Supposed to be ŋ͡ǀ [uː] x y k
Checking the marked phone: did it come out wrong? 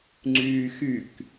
yes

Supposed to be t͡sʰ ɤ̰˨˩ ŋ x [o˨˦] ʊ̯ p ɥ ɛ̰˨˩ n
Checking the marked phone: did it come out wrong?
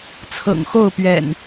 yes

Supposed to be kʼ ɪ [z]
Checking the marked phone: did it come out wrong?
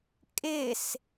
yes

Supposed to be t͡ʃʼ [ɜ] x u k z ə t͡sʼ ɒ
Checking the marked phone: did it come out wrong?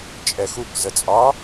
yes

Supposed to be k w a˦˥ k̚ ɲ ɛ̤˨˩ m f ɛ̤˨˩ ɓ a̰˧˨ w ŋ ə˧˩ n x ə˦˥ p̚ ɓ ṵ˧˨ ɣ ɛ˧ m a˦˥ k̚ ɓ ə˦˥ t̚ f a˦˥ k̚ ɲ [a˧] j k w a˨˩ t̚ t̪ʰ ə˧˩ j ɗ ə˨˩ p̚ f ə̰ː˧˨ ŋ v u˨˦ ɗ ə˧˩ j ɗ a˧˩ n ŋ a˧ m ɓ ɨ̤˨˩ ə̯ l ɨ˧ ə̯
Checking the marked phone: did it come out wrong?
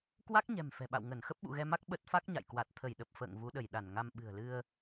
yes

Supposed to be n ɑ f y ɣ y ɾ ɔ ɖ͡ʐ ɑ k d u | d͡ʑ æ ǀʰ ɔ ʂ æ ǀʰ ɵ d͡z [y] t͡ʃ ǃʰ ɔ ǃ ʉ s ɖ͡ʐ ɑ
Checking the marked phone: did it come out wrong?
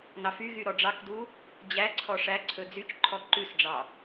no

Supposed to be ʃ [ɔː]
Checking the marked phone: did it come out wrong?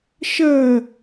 yes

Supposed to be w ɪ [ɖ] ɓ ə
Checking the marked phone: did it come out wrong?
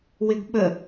yes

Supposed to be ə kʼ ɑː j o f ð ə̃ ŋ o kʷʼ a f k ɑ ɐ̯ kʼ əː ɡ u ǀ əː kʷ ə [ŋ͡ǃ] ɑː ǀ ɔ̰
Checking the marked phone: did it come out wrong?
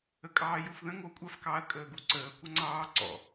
yes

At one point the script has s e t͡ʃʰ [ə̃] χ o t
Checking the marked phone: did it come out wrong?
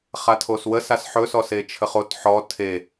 yes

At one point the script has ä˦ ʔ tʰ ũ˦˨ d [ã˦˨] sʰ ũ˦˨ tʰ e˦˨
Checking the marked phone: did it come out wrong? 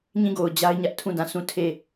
no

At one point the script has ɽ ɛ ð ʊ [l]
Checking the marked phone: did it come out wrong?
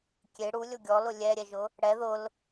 no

